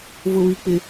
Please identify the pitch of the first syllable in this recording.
high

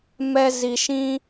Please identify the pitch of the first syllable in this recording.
high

